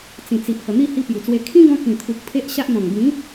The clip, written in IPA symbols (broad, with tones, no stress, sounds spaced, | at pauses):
t͡s ĩ˨˩ t͡s i˨ ʔ h ə˨˩ n̪ i˥˧ h i˧ p j u˨˩ t͡s w e˧ kʰ ĩ˦ ɡ ɔ̃˧ k ĩ˨˩ t̪ʰ u˨ k̚ pʰ e˦ ʔ ɕ a˦ ʔ n̪ ɔ̃˨˩ ŋ ɡ ĩ˨˦